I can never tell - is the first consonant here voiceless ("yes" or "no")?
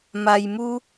no